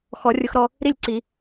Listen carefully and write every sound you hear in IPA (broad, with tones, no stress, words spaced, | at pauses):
xɔ˨˩˦rʲʊ˧xɾɔ˥˧ | ɾi˥˧lʲǀi˨˩˦